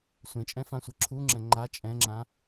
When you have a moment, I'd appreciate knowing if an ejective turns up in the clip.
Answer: yes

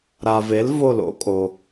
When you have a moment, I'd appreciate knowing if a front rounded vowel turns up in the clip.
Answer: no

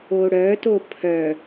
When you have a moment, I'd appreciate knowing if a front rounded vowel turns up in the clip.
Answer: yes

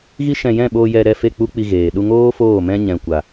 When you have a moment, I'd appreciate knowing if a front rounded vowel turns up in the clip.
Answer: no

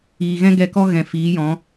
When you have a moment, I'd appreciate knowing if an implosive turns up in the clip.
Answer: no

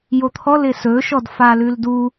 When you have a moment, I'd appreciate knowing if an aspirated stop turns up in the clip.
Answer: yes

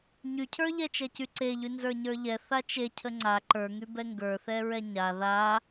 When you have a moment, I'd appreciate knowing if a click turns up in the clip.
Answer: yes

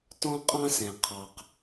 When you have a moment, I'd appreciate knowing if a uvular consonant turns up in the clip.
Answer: yes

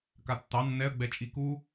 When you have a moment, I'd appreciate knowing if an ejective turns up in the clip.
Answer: yes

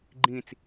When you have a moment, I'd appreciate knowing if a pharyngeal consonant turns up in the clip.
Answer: no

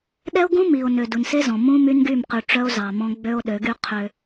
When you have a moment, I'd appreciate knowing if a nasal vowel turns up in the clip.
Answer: yes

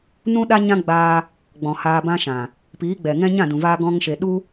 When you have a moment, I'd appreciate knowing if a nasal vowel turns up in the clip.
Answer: yes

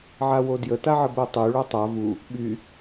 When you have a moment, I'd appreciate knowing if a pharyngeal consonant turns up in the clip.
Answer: yes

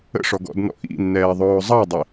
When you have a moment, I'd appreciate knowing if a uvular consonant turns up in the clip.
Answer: no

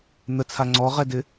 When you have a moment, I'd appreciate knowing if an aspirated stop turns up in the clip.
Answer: yes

